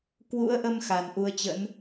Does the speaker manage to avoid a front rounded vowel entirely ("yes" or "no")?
yes